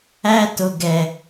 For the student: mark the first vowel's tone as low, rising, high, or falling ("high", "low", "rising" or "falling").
high